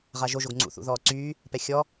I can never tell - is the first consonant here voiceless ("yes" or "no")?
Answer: no